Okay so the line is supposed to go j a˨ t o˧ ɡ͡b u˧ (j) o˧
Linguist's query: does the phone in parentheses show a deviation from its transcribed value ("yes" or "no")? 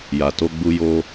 no